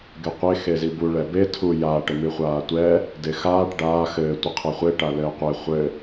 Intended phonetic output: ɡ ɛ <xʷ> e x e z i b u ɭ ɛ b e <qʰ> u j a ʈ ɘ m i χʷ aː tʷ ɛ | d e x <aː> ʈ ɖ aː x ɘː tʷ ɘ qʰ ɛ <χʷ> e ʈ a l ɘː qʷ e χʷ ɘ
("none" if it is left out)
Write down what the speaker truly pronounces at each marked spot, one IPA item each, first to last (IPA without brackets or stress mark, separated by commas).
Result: qʷ, tʰ, aː, χʷ